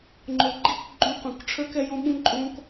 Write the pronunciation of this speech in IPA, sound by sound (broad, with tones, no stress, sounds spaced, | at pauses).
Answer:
ŋ͡ǃ o˨ ɡ͡ǃ i˦ k ɡ͡ǃ ũ˦ q ũ˨ k ʈ͡ʂʰ ə˞˦ k ɛ˧ j õ˦ ɓ ũ˦ ǃʼ õ˧ k